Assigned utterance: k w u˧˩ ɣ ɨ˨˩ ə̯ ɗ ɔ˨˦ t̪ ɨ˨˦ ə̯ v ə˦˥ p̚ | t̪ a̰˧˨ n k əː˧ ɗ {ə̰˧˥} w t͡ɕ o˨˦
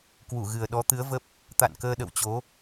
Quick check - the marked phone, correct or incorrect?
incorrect: ə̰˧˨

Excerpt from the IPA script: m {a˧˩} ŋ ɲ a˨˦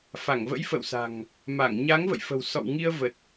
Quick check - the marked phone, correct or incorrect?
correct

